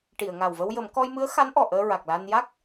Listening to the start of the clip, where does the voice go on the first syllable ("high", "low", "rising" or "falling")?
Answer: low